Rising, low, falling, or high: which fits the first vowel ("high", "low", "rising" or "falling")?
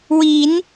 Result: rising